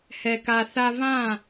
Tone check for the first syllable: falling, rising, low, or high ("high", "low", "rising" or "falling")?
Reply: low